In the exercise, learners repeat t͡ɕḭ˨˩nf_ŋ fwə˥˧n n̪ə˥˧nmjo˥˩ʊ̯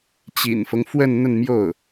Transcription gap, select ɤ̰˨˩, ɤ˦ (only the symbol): ɤ˦